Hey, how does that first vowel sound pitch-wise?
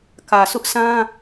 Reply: low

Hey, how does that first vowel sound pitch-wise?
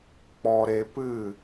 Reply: low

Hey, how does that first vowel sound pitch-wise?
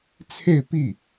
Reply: falling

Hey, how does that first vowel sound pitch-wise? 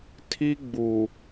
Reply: high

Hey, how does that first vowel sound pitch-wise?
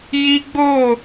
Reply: high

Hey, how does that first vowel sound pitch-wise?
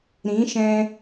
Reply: rising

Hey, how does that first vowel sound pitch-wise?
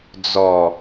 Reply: low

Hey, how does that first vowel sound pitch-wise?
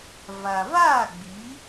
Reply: low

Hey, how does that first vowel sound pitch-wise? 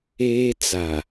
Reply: high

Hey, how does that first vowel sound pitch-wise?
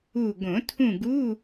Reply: falling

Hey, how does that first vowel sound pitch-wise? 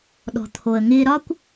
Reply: low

